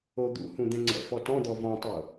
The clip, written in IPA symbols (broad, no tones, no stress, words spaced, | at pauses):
od̪ṵhũ d̪ɛ̃ŋ͡ǀɛ̰fɔ tɔ̃d̪ɔ vɔ̃tˤo